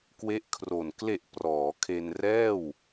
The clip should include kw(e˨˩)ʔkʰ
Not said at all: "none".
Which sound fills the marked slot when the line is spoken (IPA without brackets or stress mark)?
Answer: e˦˥